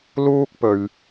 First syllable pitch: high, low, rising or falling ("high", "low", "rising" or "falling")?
high